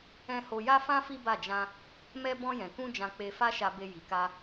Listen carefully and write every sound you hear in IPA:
ɛ̃˦ h o˧ j a˦ f ã˦ f i˦ b a˦˨ d͡ʒ ã˧ | m ɛ˦ b ɔ̃˧ j ɛ̃˨ k ũ˧ d͡ʒ ã˧ k͡p e˧ f a˦ ʃ a˧ b e˧ j i˨ k a˧

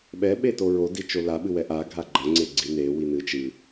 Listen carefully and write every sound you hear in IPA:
ɓ ɛ ɓ e t o ɹ o d i t͡ʃ o l a ɓ ɨ w ɛ ʔ a ɡʱ a ɡ͡ǃ ɐ ŋ͡ǀ e ɡ͡ǀ i n e w i n ɨ t͡ʃ ɨ

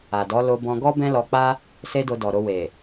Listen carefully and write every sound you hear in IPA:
a˨ d ɔ˨˦ l o˧ b ɔ̃˧ ɡ ɔ˦ b ɛ̃˦ l ɔ˧ k͡p a˦ | s e˦ d o˧ d ɔ˨ ɾ o˧ w e˨

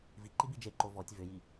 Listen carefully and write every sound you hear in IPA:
v i ǃ i b i d͡ʒ e ǃ o v ɔ tʲ v ʏ j i

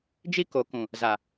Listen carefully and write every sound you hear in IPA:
d͡ʒ i˦ k o˨ k ũ˨ | z a˨

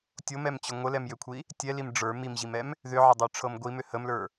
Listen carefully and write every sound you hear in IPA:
tʲ o m ɛ m t͡ɕ ʏ ŋʷ ə l ɛ m j ʏ kʷʰ i | tʲ ɛ l i m ɖ͡ʐ ə˞ m i m ʑ i m ɛ m | ð ʏ ʕ ə dˤ ə˞ ʈ͡ʂʰ ɤ m ɡʷ i m ʏ h ə m l ə˞

